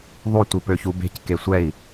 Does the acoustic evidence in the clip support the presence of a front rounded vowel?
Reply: yes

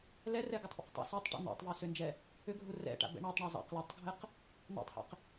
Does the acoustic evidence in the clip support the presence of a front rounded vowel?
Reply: yes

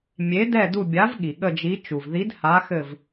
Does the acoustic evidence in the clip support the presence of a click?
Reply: no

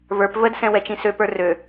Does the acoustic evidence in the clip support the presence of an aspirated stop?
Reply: no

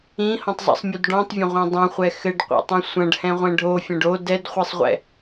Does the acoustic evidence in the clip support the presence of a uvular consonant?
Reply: yes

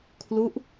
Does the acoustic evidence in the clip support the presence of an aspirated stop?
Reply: yes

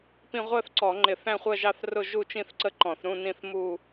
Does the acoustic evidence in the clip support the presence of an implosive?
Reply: no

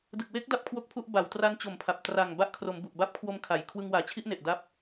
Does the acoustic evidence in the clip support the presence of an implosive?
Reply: no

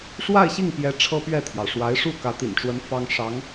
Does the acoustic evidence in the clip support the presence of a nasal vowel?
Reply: no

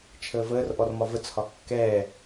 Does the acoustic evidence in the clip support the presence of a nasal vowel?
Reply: no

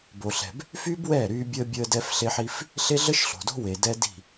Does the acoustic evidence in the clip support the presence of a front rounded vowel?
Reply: yes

